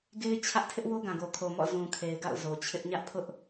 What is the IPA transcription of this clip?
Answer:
ɡe˦ɪ̯t͡ɕʰä˦ʔ tʰɪ˦ʔwo˦ɡã˨ɡo˨ kʰo˨mɔ̰˦˨ zũ˨kʰe˨ɪ̯ɡa̰˦˨ʊ̯ zo˨t͡ɕʰɪ˦ʔ ɲä˦ʔpʰʊ˦ʔ

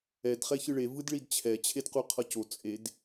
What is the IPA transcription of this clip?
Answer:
ɛd χɛçɯɭe vɯdɭidt͡ɕʰɛ t͡ɕʰedquqʰʌco t͡sʼed

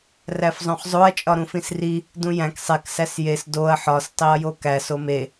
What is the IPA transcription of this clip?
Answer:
ræfzˤõχzˤoɐ̯ t͡ʃʼɒɾũfĩsri | dũjæ̃k sˤek sæsjes doɐ̯ ħɒs tˤiɐ̯jokæ some

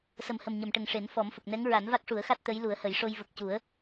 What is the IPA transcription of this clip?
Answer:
sə˨˩mhə˨˩m ɲə˨˩˨mʈə˨˩ŋʂe˨˩˦n fɔ˨˩˦mfə˨˩k̚nɛ˧˥ŋ ɹa˨˩˦nva˦˥k̚ʂu˨˩˦ə̯xa˦˥t̚ t̪ə˧˥j lu˨˩˦ə̯hə˨˩˦jʂo˧j və˨˩k̚cu˨˩˦ə̯

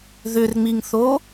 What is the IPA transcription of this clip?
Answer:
ðʏrŋ͡miŋθo

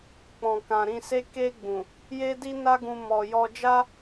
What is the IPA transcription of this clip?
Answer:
k͡pɔ̃˨kã˨ ɾĩ˧se˦ ke˧ ɡ͡bũ˨ | je˦di˦ na˦ɡũ˧ mɔ˨jɔ˧ d͡ʒa˦

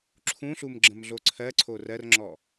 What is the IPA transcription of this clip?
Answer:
ǁʰũɬum ɡ͡ǁə̃mɮoǀʰɜǀʰo rɜrŋ͡ǁɔ

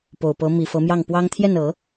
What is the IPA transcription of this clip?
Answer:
po˨˩ʊ̯pɤ˧˥ mi˨˩fɤ˧˥mjɑ˥˩ŋpwɑ˥ŋ t̪ʰjɛ˥˩nɤ˨˩˦

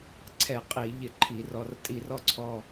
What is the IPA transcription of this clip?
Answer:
ǀʰɛ˧˩˧ qʼiː˧˩˧ʎɪ˧˩˧ǃʰi˧˩˧rɔ˩˧˩r tʼi˧˩˧rɔ˦˥ǀʰɔ˩˧˩

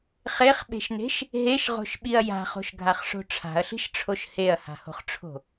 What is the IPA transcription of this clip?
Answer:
χeχɓe̤ʃne̤ʃ | ɦeʃʁo̤ʃɓiɐ̯ ja̤χo̤ʃɡʱaχʂo̤ ʈ͡ʂʰa̤ɐ̯ɬi̤ʃʈ͡ʂʰoʃ heɐ̯ha̤ho̤χʈ͡ʂʰo̤

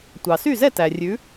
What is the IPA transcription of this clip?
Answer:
tʷɑ˩sy˥˩zɛ˥˩ tæ˩ rʲʉ˩˥

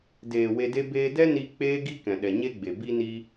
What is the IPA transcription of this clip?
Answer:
deː˨ we˧de˦ beː˧dɛ˦ ni˧ k͡peː˦ɡi˦ kɛ̃˨ɗɛ˨ɲe˦ɡ͡be˨ bi˦ni˦

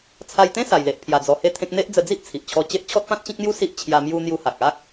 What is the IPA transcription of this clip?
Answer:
t͡sʰa˧jt̪ẽ˦ sa˨˩jle˨ʔ pʰja˨˩ d͡zɔ˧he˥˧t̪ʰẽ˦k̚ n̪e˦ʔd͡zə˧d͡zi˦ʔ t͡sʰi˨ʔt͡ɕʰɔ˧t͡ɕe˦ʔ t͡ɕʰɔ˦t̚pã˦t̚t͡ɕĩ˦k̚n̪ju˦ si˦ʔt͡ɕʰja˧ mju˧ n̪ju˧ha˨k̚ a˦k̚

